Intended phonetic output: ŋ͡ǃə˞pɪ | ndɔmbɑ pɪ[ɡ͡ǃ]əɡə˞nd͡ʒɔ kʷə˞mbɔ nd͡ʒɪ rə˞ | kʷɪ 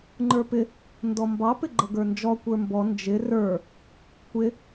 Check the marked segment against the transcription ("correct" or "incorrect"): correct